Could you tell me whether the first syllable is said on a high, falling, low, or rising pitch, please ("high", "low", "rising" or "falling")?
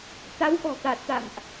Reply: rising